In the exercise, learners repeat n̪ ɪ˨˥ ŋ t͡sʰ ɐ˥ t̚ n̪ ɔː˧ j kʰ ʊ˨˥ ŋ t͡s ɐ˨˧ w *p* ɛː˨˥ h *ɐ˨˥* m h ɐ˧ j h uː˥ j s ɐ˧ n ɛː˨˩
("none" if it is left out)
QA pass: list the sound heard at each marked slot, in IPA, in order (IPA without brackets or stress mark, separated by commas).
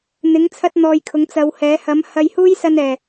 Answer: h, ɐ˨˥